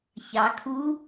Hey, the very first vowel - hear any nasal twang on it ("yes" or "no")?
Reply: no